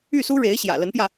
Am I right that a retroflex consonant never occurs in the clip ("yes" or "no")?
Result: no